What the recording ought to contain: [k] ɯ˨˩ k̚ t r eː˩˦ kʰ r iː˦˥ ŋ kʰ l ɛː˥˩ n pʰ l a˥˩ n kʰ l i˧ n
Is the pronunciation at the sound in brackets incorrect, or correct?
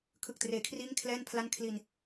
incorrect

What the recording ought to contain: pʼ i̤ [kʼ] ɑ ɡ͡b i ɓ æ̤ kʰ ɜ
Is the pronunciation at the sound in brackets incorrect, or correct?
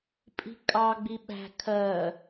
correct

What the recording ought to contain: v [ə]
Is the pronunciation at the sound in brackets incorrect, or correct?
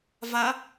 incorrect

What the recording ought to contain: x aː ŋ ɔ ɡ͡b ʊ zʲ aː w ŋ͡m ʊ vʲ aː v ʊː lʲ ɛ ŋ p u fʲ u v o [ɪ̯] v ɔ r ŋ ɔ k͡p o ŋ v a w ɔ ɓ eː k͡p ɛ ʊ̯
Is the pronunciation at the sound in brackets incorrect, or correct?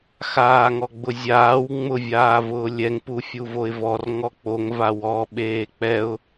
correct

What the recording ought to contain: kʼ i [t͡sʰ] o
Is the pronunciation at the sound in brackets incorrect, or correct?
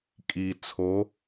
correct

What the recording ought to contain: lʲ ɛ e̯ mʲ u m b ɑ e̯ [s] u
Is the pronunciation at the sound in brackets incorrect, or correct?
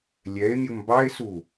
correct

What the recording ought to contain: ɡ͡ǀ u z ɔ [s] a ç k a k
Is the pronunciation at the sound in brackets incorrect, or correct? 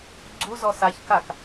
correct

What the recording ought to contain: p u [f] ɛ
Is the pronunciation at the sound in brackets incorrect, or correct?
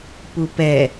incorrect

